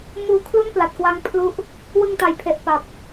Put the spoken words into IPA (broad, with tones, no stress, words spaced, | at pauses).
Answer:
muː˧kʰlu˥˩npla˨˩t̚kwa˦˥ŋ pʰlu˥˩ʔ | wɯ˧ŋta˨˩jpʰe˨˩ʔ pa˨˩p̚